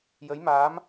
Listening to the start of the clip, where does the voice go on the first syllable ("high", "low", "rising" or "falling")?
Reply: rising